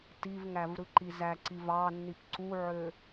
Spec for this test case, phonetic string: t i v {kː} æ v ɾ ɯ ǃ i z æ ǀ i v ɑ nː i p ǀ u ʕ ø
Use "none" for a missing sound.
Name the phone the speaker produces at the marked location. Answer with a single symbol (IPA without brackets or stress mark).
ŋ